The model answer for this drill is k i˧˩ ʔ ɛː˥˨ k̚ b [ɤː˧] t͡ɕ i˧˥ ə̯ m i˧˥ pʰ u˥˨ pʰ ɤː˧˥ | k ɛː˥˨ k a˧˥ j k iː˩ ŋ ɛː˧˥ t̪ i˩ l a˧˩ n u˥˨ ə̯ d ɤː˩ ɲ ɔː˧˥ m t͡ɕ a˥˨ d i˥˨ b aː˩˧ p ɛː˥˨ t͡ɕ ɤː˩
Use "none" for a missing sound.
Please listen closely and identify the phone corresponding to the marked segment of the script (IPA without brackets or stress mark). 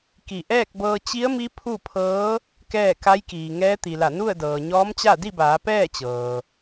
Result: ɤː˧